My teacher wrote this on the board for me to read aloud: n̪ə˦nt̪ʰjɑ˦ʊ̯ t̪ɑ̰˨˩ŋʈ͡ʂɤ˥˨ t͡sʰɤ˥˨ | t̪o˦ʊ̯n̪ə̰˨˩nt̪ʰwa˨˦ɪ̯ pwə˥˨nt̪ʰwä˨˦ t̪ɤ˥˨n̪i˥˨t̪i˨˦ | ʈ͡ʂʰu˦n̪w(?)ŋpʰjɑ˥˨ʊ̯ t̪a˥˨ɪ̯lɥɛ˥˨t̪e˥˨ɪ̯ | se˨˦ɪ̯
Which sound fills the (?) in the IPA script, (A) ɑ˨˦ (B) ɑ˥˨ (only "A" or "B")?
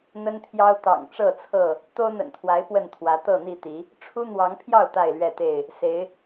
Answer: A